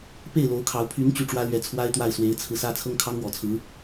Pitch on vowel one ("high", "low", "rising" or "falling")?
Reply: falling